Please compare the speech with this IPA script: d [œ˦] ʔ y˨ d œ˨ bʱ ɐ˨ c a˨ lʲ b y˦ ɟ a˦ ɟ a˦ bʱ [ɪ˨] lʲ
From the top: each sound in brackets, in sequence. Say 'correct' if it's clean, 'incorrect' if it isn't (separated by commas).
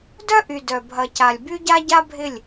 correct, incorrect